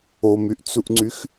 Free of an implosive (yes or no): yes